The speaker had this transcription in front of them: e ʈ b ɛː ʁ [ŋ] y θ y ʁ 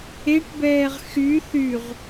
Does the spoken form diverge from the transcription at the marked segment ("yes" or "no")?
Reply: yes